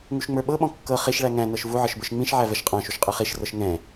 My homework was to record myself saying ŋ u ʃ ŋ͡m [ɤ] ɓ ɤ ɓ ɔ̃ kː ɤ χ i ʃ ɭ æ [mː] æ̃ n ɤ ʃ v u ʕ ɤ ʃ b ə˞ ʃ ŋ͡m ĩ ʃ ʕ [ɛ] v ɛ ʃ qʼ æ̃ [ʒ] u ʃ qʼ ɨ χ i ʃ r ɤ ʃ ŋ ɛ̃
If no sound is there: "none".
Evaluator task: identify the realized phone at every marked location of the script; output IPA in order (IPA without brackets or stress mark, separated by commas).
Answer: ə˞, ŋ, æ, ʃ